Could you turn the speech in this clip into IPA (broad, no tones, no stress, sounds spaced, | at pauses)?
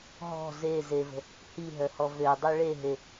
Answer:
ɦ ɔ̤ z e z e v ə̤ | h i ɦ œ h ɔ v ø dˤ u ɭ e ɦ e